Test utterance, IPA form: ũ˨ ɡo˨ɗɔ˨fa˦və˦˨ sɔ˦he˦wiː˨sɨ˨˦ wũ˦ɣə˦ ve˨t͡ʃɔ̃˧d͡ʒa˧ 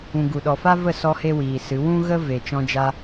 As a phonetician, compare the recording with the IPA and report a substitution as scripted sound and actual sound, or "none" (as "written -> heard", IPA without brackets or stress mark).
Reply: o˨ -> u˨